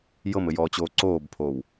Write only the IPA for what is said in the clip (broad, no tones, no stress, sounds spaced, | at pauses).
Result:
j ɤ m ɘ j ɔː t͡ɕ oː ǀ oː b pʰ oː w